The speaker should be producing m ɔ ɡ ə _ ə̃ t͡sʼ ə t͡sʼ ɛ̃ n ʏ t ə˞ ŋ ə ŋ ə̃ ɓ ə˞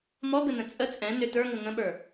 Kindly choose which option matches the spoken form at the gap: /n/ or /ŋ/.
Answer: n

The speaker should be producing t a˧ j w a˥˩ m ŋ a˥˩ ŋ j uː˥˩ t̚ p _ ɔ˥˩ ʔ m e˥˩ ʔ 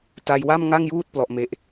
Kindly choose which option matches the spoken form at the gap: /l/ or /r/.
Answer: l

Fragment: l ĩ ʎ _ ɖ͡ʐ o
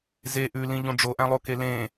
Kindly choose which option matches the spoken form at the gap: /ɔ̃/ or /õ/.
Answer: õ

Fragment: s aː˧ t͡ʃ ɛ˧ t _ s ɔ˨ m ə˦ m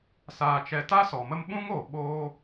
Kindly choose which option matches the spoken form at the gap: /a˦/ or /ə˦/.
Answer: a˦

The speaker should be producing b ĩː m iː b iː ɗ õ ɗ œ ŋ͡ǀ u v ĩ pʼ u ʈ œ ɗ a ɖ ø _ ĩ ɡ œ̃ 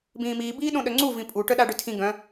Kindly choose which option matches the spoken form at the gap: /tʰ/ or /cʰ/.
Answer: tʰ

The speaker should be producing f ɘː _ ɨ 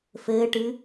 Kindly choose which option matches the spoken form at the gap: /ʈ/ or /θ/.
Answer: ʈ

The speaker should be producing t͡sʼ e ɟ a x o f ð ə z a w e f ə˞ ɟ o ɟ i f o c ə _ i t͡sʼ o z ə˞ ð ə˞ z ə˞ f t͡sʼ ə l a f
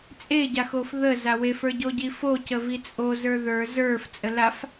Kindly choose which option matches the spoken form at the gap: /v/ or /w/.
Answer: v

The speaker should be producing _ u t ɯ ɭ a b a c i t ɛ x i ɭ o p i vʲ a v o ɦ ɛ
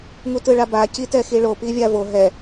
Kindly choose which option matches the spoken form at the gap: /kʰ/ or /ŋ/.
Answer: ŋ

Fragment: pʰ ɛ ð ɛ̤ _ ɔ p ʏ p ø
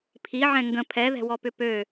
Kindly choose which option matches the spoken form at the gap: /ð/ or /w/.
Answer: w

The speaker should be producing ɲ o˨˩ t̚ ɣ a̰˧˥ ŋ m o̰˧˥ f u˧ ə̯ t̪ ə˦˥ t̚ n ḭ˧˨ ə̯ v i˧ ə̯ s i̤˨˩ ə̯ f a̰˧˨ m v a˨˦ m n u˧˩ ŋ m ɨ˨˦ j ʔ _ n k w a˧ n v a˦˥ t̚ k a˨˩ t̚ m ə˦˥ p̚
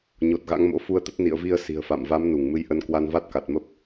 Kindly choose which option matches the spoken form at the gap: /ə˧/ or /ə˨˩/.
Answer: ə˧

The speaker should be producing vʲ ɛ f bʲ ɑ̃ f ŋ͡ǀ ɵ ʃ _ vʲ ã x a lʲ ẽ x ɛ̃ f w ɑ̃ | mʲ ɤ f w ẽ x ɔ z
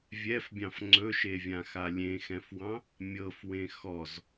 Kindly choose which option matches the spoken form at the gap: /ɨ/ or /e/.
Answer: e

